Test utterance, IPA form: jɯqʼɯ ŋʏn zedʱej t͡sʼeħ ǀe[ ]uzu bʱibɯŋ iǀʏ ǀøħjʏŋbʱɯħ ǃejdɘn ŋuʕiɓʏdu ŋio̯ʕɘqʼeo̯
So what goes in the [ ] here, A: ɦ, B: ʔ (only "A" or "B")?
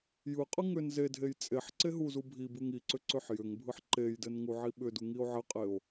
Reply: A